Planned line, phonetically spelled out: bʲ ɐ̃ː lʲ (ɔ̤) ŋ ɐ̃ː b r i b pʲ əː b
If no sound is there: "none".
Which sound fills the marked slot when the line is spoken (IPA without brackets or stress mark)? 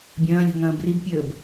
ɔ̤